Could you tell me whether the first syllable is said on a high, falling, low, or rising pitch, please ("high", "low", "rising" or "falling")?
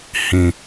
low